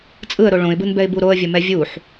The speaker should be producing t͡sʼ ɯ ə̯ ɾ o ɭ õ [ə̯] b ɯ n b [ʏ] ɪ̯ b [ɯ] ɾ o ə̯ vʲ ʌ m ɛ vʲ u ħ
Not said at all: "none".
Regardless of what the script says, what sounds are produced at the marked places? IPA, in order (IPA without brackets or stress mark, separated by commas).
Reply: ɪ̯, ɛ, u